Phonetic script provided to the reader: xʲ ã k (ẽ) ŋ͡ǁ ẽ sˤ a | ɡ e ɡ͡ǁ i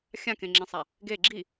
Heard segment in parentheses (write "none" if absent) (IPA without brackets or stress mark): ẽ